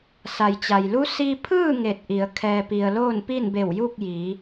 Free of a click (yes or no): yes